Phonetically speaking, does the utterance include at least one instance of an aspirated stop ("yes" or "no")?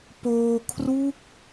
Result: yes